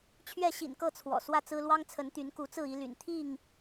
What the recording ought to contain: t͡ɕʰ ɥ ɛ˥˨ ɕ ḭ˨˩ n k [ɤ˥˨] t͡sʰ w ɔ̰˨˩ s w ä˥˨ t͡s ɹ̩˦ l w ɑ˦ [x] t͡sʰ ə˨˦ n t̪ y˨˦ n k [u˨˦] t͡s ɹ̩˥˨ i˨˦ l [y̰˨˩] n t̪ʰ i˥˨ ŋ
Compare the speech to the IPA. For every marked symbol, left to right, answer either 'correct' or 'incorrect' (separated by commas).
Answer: correct, incorrect, correct, correct